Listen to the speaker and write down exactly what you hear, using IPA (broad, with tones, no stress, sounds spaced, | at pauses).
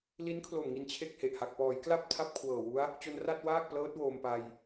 l i˦˥ n kʰ l o˨˩ m ŋ i˧ n t͡ɕʰ e˥˩ k̚ h e˨˩ ʔ h a˨˩ k̚ p ɔː˩˦ j k l a˥˩ p̚ tʰ a˥˩ p̚ kʰ w ɤː˨˩ w u˦˥ a̯ | t͡ɕ o˧ n r a˥˩ t̚ w aː˥˩ k̚ p l ɤː˦˥ t̚ w oː˧ m p a˧ j